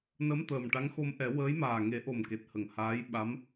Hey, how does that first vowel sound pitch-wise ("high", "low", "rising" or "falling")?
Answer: rising